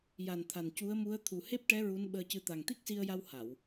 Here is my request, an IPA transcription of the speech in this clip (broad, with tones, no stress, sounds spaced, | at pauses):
j a˨˩ n t̪ʰ a˨˩ n c u˧˥ ə̯ m u˧˥ ə̯ t̪ʰ u˨˩ h e˦˥ p̚ ʈ ɛ˧˥ ɹ u˧˥ n ɓ əː˧ c ɨ˧ t̪ a˨˩ ŋ t̪ i˦˥ k̚ s i˧ ə̯ j a˧ w h a˨˩˨ w